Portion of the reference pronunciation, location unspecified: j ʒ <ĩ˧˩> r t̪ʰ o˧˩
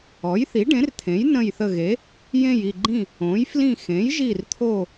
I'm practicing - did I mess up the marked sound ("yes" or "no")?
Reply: yes